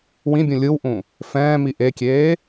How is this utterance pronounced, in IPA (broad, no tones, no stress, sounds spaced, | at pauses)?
w ĩ bʲ ũ lʲ ɯ w ʔ ũ | f ɛ̃ː m i ʔ e kʲ eː